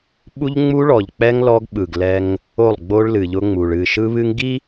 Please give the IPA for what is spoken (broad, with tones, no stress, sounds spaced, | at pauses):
ɓ u˦ ʎ ŋ͡m u˦ ɭ ɔ˨ ʎ k͡p ɛ˦ ŋ l ɔ˦ ɡ ɓ ɯ˨ ɡ l ɛ˦ ŋ | o˦˨ lˠ ɡ͡b o˦ ɭ l ɨ˨ ʎ ʊ˦ ŋ͡m u˨ ɭ ɨ˦˨ ʃ ɯ˦ β ɨ˦ ŋ ɡ i˦